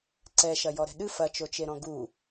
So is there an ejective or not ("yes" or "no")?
no